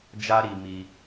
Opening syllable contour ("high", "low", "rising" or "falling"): high